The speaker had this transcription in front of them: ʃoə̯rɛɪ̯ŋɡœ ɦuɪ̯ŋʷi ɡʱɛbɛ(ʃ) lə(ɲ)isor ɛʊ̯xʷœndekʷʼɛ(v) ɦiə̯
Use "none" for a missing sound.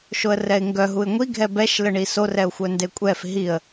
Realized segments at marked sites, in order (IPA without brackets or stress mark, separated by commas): ʃ, ɳ, f